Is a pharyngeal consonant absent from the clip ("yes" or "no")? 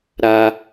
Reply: yes